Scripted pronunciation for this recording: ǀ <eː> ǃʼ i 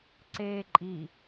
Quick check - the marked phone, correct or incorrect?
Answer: correct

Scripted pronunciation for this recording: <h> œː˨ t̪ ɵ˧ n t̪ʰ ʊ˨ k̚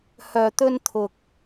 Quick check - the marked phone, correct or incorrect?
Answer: correct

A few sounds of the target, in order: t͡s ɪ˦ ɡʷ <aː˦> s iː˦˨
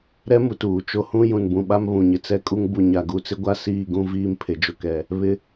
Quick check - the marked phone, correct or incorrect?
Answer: incorrect: a˦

